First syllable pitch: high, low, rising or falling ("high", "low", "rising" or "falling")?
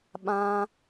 high